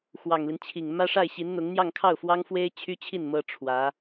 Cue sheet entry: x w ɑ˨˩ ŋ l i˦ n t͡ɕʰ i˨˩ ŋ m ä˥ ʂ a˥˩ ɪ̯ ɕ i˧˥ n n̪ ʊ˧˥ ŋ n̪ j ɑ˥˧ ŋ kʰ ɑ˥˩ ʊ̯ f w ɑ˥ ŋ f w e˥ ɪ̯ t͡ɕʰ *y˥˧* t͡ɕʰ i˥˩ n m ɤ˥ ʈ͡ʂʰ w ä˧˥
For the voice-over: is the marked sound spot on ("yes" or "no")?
no